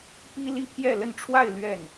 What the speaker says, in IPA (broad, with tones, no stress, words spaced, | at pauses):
pi˥ li˥pʰjɛ˥˧lə˥˧nʈ͡ʂʰwa˥˧ɪ̯ lɥɛ˥˩n